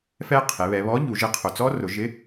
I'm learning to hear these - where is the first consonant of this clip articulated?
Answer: lips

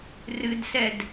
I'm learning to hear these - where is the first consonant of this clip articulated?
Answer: tongue tip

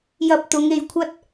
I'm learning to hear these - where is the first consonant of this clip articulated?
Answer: palate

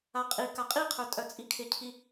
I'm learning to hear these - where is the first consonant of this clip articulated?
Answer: uvula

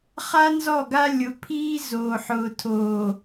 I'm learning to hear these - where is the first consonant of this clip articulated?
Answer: uvula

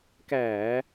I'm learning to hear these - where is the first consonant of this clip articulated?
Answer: velum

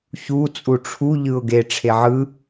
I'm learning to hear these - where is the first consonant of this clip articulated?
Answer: palate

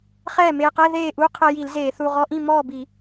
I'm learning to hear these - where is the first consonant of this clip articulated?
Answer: uvula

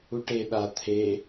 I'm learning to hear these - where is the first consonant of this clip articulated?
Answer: retroflex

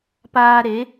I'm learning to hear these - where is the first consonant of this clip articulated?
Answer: lips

